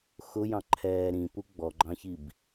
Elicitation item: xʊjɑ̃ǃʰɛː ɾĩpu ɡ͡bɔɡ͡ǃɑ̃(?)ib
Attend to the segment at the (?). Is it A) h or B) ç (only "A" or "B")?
B